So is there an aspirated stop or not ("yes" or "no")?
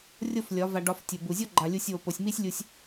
no